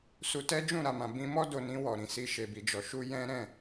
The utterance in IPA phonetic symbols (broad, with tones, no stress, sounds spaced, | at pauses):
s u˧ t ɛ˦ d͡ʒ ũ˦˨ ɾ a˨ m ã˨ b ĩ˧ m ɔ˦ d o˧ n ĩ˧ w ɔ˨ ɾ ĩ˨ s i˧ ʃ e˨ b i˨ d͡ʒ ɔ˨ ʃ u˧ j ɛ̃˦ ɾ ɛ̃˦˨